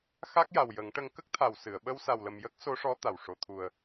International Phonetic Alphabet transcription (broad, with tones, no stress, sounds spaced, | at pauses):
x a˦˥ k̚ j a˨˩ w j ə˨˩˦ ŋ ʈ ə˧ ŋ k ə˦˥ k̚ t̪ʰ a˨˩ w s ɨ˨˩˨ ə̯ ɓ ə˧ w s a˨˩ w l ə˨˩ m j ə˦˥ k̚ s o˧˥ ʂ ɔ˧˥ t̪ a˨˩ w ʂ o˨˩ t̪ʰ u˨˩ ə̯